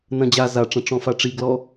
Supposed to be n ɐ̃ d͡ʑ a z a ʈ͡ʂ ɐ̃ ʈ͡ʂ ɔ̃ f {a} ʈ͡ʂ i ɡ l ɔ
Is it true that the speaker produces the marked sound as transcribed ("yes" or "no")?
yes